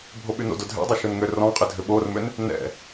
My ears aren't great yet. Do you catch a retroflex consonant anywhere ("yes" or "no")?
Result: no